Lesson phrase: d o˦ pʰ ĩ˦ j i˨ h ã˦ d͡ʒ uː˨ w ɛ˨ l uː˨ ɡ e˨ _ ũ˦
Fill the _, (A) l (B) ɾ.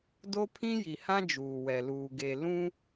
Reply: A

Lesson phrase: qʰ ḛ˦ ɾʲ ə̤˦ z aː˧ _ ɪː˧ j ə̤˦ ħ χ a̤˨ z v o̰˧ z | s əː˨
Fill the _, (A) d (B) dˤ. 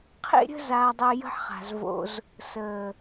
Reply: B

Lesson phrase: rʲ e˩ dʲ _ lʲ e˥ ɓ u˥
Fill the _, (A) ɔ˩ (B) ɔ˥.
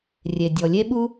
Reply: A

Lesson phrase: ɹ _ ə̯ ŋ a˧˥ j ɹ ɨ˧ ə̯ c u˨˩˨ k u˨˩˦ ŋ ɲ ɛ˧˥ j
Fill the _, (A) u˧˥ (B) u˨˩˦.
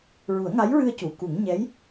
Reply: B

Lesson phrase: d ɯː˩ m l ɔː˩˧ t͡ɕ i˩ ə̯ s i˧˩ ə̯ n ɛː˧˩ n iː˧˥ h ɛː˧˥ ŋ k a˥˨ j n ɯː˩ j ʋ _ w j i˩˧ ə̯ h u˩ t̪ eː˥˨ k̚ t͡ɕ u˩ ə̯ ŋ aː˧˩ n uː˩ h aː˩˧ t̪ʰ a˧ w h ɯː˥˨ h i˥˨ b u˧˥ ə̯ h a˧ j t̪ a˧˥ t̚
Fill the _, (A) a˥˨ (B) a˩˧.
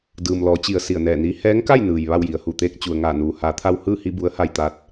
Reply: A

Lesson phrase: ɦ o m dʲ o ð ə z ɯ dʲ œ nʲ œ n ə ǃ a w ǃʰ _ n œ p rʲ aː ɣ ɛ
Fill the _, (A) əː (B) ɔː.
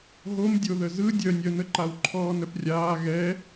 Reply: B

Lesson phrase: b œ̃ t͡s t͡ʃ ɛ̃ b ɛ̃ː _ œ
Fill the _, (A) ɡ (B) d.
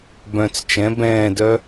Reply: B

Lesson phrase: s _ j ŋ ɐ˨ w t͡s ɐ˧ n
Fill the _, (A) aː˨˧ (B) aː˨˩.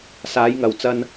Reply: A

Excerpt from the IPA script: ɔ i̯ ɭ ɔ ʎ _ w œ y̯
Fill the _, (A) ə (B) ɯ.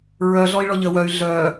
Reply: A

